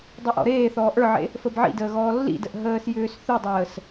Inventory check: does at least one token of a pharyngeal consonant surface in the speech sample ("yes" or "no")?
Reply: yes